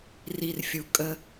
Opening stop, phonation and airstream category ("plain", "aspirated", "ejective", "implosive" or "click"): ejective